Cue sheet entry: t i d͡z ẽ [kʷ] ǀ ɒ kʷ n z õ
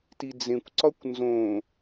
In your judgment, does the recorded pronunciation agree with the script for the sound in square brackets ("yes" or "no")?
yes